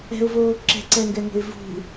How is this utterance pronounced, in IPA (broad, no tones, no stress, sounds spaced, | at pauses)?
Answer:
ɛ̤ ʊ̯ v oː ǁ ɛ̤ ǀ ɛ ŋ ɡ ɛ ŋ o̤ ɪ̯ v ṳ